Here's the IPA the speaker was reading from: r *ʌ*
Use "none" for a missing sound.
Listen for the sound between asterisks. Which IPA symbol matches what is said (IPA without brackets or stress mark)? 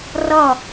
ʌ